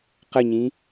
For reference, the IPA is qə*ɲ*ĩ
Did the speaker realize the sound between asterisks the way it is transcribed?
yes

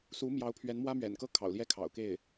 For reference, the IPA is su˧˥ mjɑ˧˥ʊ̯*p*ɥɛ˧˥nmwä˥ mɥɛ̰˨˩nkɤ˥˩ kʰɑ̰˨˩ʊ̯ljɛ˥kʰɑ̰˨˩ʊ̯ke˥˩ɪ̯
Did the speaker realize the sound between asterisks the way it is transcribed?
no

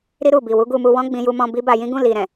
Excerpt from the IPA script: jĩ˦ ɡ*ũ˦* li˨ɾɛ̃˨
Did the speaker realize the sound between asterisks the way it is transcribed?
no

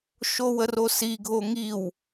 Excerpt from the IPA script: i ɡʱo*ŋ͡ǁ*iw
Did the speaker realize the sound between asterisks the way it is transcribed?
no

